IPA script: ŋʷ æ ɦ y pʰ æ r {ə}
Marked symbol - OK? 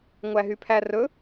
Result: no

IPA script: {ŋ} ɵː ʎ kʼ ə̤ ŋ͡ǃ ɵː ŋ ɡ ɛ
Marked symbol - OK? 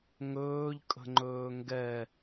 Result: yes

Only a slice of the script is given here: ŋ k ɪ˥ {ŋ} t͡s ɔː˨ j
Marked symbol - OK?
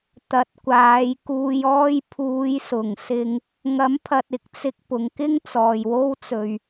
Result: yes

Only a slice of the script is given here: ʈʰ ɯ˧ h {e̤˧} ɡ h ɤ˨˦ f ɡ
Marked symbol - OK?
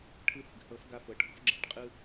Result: no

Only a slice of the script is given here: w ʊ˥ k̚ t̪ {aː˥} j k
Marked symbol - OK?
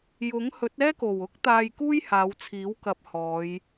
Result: no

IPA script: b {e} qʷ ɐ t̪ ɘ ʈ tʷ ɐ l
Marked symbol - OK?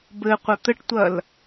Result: no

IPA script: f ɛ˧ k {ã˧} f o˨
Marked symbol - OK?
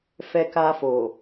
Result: no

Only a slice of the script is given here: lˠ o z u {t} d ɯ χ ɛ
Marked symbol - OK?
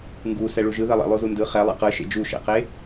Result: no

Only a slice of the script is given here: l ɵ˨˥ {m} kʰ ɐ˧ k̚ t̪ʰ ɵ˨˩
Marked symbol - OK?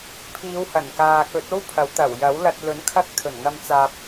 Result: no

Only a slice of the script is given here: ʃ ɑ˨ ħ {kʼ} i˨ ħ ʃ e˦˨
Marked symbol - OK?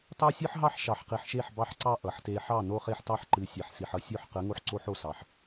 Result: no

